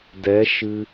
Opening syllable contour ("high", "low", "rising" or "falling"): rising